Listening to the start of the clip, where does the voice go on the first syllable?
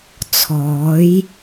rising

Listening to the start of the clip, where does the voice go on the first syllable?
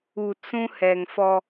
low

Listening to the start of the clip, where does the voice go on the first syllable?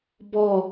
falling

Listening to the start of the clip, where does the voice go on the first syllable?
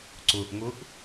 low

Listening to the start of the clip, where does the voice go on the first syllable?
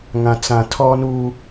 low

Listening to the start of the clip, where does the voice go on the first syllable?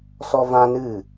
high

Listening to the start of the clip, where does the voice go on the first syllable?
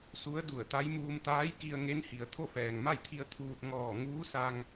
rising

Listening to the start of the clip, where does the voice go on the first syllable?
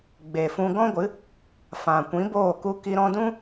low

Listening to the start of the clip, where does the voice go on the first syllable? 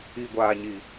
low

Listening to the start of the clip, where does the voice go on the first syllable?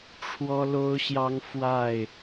high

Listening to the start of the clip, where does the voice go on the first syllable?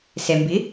low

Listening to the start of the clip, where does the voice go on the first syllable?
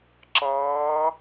rising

